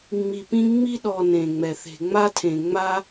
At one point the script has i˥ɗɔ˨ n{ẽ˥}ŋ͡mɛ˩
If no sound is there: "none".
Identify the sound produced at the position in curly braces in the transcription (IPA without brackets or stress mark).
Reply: ẽ˩